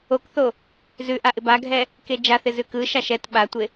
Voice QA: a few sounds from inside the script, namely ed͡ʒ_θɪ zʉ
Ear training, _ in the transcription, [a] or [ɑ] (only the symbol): a